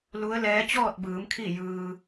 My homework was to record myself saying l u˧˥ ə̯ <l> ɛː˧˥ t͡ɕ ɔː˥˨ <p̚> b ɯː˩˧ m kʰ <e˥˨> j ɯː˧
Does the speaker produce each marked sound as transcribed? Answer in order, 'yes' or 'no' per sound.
yes, no, no

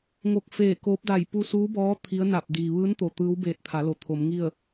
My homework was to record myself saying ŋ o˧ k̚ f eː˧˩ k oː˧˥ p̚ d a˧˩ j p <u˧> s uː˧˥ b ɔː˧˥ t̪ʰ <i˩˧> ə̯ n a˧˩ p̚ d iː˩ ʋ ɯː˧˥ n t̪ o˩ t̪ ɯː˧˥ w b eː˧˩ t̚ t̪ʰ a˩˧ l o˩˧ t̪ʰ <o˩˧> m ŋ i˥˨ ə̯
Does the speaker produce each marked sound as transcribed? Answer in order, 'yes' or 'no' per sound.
yes, no, yes

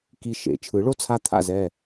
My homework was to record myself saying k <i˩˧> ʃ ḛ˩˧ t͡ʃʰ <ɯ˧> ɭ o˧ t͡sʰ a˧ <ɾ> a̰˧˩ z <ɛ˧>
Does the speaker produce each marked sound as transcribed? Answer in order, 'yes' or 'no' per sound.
no, no, no, no

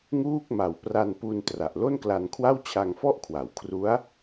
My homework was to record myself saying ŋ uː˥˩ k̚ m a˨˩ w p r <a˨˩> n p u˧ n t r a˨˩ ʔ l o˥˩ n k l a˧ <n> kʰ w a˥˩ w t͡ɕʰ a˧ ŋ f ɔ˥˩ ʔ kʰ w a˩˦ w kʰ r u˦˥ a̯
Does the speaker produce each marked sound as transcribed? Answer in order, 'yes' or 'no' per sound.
no, yes

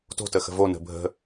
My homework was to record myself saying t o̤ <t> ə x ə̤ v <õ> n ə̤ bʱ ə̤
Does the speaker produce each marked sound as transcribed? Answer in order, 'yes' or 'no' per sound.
yes, no

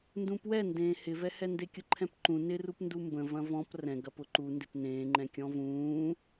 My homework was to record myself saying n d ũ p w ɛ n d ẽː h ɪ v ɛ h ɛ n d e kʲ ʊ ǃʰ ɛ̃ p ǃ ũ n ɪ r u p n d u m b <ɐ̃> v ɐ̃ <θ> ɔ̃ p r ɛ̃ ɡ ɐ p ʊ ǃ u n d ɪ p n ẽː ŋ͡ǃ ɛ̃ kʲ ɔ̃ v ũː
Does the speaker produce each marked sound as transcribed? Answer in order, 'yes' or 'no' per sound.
no, no

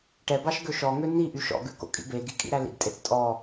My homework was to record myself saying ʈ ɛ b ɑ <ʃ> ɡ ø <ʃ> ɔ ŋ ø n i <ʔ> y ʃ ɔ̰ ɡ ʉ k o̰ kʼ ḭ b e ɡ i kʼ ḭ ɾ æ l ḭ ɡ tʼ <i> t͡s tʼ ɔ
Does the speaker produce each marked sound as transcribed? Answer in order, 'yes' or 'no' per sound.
yes, yes, yes, no

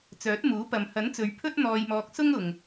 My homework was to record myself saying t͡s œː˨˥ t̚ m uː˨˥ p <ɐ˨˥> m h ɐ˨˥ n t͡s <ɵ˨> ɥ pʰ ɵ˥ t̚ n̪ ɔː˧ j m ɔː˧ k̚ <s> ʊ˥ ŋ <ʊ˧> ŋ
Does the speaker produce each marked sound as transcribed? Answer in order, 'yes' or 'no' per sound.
no, no, yes, no

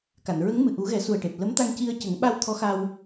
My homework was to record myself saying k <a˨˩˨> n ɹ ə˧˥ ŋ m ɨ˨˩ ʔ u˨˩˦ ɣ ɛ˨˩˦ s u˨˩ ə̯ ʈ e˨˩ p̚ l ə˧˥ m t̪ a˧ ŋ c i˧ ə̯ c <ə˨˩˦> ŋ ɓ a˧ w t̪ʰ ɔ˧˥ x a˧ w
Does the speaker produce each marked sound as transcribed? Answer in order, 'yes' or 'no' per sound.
yes, yes

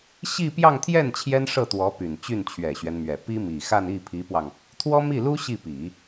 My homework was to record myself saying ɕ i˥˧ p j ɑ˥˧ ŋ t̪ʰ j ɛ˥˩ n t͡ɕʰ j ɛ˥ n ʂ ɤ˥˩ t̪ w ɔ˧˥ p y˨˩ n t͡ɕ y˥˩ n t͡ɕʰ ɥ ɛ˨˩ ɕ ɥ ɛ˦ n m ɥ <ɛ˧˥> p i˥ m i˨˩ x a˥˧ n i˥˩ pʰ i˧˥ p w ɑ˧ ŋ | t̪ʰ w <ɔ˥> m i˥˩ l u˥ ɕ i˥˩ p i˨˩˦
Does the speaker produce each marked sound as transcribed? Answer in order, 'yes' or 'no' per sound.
no, yes

